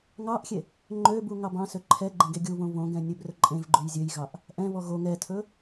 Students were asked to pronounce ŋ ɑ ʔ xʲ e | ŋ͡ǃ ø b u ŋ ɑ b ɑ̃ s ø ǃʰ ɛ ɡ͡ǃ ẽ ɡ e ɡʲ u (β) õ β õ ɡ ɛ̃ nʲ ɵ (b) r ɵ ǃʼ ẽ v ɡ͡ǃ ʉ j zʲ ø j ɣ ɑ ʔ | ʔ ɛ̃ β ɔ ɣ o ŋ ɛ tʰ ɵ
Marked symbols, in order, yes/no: yes, yes

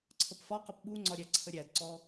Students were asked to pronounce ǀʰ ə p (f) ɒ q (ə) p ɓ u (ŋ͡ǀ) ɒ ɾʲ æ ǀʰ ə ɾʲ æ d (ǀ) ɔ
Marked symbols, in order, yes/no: yes, yes, yes, yes

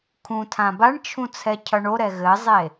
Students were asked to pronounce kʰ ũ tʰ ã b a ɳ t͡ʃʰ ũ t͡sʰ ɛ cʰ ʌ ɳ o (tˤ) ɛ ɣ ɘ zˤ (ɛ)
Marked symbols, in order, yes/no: no, no

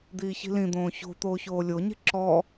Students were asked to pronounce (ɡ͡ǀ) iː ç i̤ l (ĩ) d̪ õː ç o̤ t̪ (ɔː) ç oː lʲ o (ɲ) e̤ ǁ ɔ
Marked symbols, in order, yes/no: no, yes, no, yes

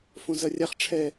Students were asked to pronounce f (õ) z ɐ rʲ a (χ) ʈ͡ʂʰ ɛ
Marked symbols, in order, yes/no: yes, yes

